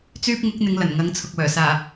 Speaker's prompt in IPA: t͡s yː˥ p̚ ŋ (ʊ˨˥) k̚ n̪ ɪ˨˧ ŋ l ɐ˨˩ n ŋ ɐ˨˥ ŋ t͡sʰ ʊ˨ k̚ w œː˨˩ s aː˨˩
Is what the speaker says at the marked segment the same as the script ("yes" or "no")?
yes